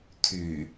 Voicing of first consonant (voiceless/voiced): voiceless